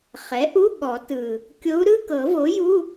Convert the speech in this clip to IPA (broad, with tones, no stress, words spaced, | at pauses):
χɛ˩˥ʔu˧˥˧ ɠɔ˨˩˦tɯ˨˩ | kʲo˧˥u̯ɾɯ˧˥˧ kɤ˨˩˦vo˩˥ju˧˥˧